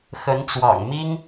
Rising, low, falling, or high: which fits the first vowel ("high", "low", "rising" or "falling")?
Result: rising